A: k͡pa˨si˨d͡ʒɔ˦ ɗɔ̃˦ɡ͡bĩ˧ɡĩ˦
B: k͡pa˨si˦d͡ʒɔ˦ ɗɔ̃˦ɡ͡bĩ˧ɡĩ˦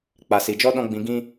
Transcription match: A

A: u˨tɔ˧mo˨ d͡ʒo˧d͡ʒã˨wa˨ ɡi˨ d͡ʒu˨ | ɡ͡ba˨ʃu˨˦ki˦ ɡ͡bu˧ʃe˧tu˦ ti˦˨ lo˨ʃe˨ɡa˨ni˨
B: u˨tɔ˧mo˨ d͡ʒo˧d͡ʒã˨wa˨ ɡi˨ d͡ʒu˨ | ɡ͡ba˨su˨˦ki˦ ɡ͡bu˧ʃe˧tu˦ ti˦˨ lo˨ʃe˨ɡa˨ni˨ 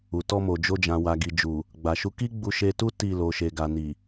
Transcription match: A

